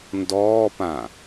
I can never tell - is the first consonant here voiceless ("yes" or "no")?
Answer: no